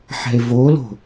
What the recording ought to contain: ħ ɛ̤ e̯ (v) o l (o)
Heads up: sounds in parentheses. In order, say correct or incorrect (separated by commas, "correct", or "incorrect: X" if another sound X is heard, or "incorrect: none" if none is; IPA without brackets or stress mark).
correct, incorrect: o̤